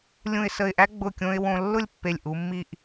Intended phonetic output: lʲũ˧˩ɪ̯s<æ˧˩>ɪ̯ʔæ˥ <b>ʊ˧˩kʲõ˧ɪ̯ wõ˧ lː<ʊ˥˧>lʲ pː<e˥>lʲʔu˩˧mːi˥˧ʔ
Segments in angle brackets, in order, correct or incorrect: incorrect, incorrect, correct, incorrect

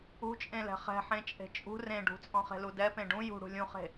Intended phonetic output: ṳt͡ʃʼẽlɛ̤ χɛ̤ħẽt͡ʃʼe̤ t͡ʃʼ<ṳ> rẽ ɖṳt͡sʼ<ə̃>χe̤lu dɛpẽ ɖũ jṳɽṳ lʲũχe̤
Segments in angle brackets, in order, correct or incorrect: correct, incorrect

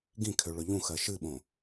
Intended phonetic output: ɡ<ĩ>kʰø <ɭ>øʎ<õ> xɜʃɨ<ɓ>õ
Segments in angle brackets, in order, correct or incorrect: correct, correct, incorrect, correct

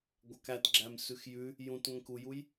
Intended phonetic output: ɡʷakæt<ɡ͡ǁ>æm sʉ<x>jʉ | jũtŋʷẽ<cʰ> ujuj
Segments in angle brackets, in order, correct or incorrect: correct, correct, incorrect

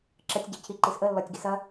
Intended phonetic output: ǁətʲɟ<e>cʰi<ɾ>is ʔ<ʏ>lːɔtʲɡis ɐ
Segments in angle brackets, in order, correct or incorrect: incorrect, incorrect, incorrect

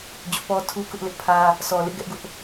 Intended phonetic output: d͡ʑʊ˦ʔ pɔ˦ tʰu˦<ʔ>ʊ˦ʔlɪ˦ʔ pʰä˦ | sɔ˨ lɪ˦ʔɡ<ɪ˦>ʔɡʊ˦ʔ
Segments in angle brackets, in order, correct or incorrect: incorrect, incorrect

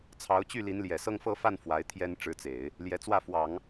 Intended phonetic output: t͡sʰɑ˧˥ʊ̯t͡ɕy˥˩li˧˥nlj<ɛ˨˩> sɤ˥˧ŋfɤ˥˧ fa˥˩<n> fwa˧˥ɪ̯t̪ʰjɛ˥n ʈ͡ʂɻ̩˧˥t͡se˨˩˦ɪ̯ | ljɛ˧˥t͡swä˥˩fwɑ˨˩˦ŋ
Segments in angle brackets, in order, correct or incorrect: correct, correct

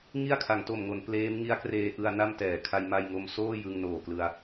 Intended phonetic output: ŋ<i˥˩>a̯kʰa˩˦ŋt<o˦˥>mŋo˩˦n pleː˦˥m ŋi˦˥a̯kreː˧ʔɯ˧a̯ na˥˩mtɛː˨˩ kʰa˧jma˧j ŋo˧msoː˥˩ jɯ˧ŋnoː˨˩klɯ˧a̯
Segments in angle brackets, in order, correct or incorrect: correct, incorrect

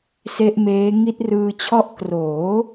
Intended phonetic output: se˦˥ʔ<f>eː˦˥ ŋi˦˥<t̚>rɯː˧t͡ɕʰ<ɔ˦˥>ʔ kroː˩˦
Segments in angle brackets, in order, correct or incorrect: incorrect, correct, correct

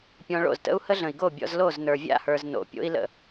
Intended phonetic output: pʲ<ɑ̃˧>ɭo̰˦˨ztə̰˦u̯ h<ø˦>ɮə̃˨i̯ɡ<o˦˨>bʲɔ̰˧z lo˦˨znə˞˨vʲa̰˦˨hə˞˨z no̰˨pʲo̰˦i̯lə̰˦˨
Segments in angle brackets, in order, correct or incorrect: incorrect, incorrect, correct

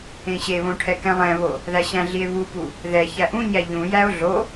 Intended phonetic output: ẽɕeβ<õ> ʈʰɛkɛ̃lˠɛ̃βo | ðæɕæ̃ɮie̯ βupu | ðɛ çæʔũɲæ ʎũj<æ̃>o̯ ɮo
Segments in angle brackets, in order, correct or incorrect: correct, incorrect

